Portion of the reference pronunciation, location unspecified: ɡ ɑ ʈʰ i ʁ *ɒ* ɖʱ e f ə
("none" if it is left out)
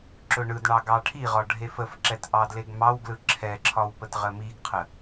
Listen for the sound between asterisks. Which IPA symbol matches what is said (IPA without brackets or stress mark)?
ɒ